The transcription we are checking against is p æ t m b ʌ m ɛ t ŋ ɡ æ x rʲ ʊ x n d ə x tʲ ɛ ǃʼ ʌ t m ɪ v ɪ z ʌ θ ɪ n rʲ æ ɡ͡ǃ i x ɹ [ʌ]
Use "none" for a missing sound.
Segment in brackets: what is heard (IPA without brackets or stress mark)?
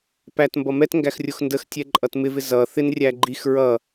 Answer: ʌ